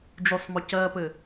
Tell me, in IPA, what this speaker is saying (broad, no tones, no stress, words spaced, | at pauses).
d͡ʒʉsˤmɔ cɜpɘ